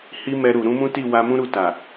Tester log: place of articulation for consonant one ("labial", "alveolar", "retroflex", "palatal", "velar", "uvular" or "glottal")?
glottal